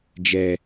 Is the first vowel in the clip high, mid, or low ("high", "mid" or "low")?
mid